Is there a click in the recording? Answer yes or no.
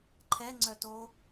yes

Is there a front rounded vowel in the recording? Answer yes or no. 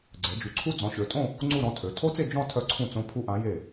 yes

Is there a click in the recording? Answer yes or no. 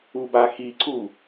yes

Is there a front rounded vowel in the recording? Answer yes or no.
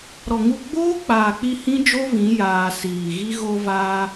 no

